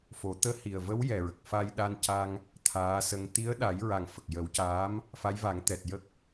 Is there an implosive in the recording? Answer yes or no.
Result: yes